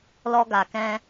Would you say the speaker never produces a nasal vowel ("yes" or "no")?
no